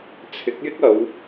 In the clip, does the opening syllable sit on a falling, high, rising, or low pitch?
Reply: rising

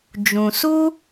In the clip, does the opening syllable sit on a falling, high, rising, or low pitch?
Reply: low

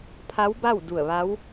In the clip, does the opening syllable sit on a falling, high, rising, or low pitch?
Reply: rising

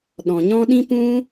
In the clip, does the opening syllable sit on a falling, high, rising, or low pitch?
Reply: low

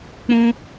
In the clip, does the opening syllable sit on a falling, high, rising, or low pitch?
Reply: high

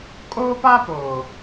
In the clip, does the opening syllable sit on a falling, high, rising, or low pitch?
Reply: high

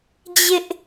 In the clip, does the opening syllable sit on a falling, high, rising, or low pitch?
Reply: high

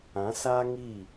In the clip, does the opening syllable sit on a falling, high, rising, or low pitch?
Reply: rising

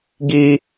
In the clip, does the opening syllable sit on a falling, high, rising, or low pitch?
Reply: high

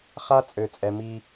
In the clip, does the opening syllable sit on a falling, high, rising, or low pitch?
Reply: high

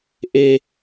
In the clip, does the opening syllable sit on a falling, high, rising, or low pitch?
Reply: high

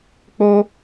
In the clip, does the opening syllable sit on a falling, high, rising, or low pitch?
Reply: high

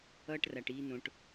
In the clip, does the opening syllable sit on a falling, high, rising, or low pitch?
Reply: high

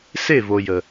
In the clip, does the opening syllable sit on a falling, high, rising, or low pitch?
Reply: falling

